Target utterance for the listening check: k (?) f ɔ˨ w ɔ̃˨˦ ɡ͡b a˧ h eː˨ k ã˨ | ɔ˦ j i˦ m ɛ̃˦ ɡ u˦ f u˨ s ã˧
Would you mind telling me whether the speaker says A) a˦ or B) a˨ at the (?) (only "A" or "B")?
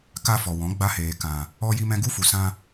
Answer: A